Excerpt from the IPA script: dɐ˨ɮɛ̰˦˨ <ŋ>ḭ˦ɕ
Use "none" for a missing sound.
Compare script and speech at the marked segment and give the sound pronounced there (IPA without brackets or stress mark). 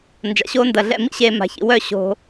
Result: m